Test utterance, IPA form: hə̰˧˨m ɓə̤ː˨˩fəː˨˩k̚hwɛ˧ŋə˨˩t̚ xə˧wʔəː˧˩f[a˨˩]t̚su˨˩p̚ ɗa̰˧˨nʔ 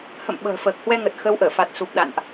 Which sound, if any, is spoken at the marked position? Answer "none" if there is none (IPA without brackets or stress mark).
a˨˩